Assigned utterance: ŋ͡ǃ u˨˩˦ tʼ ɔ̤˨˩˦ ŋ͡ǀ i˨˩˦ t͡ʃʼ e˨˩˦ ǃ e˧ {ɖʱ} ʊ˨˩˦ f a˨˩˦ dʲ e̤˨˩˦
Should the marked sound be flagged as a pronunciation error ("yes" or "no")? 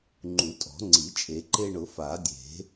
yes